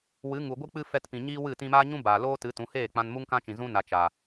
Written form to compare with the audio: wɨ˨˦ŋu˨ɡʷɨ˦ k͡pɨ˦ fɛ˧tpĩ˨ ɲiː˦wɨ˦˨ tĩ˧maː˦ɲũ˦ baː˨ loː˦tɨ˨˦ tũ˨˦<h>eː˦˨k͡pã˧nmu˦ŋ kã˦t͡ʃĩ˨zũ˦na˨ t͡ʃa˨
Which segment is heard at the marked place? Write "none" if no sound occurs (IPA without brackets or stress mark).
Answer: h